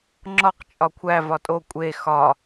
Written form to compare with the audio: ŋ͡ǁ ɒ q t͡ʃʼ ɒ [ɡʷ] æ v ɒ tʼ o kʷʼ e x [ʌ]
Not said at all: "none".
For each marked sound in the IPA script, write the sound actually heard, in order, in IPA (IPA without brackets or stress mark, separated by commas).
kʷʰ, ɒ